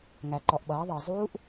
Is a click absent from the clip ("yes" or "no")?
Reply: no